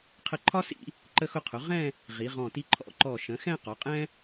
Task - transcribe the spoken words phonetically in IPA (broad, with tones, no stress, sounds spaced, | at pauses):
qʰ ə˧ ǃʰ ɒ˥ s ḭ˥˧ | ǃ ə˧ x ʊ˧ qʰ ʊ˩˧ ʁ ɛ̃˥˧ | ʁ i˩˧ ʁ ɔ̃˧˩ t i˧ ǃʰ ɔ̰˧ ǃ ɔ˧˩ ʃ ə̃˩˧ x ɛ̃˥˧ q ɒ˩˧ qʼ ɛ̃˥